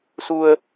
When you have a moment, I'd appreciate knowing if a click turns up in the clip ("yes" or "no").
no